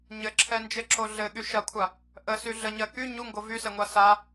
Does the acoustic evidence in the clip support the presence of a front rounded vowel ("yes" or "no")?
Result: yes